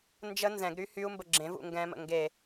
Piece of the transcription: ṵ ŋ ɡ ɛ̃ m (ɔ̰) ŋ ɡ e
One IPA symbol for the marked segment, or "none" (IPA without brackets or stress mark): ə̰